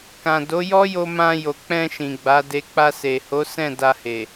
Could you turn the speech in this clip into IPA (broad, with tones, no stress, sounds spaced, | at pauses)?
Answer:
k ã˨ d o˨˦ j ɔ˦ j o˧ m ã˧ j o˨ k͡p ɛ̃˧ ʃ ĩ˨ ɡ͡b a˨˦ d e˧ k͡p a˧ s e˨ h o˨˦ s ɛ̃˦˨ d a˧ h e˨